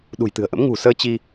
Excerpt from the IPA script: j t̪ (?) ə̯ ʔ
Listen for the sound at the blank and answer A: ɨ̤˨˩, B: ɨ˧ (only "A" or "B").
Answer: A